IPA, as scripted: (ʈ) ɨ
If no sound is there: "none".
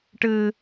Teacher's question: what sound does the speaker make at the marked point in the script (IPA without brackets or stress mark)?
ʈ